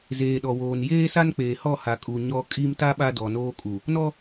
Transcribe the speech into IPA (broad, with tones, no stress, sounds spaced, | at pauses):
z eː˨ ɗ ɔ˨ w oː˨ n j eː˦ s a˦ n k͡p eː˨ h ɔ˦˨ h a˨ kʼ u˨ ɲ ɔ˨ kʼ i˦ m t a˦ ɓ a˦ d ɔ˨ n oː˦ kʼ u˨ | n ɔ˦